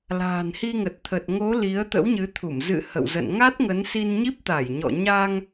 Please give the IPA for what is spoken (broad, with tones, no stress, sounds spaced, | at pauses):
l a̤ː˨˩ n h i˧ ŋ ə˨˩ t̚ t̪ʰ ə˨˩ t̚ ŋ o˨˦ l i˨˦ ə̯ t̪ ə̰˧˥ w ɲ ɨ˨˦ t̪ʰ u˧˩ m z ɨ̰˧˨ h ə̰˧˨ w z ə̰˧˨ n ŋ a˦˥ t̚ ŋ ə˨˦ n s i˧ n ɲ i˦˥ p̚ t̪ a˧˩ j ɲ ɔ̰˧˨ ɲ a˧ ŋ